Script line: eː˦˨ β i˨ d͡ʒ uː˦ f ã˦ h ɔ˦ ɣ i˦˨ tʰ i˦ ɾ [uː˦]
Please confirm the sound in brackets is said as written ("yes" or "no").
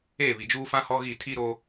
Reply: no